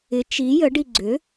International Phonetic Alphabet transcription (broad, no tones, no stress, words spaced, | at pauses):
ɪ t͡ʃi jəɖi ɡ͡ǀʏ